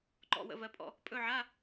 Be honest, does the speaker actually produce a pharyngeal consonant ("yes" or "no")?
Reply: yes